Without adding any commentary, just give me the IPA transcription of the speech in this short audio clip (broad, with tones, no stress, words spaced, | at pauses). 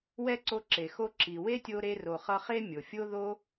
wɛ˦ǀo˧ǁe˨ xo˧ǁi˨we˦tʲo˧ ɾe˧ro˨χʌ˧χe˦ mʲo˨fʲo˦ ðo˦